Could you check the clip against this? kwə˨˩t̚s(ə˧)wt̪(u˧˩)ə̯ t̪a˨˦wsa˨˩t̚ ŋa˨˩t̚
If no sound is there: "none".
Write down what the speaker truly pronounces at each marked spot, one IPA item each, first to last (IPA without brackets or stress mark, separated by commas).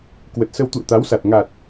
ə˧, ṵ˧˨